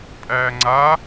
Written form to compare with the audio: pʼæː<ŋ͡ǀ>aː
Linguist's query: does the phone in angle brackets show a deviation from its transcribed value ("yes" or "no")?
no